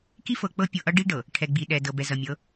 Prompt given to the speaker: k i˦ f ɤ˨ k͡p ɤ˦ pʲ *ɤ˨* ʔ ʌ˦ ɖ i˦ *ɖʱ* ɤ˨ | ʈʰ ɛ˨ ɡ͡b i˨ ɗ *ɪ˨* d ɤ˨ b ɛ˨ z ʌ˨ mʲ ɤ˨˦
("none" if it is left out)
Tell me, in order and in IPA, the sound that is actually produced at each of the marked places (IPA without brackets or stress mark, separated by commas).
ɤ˨, ɖ, ɛ˨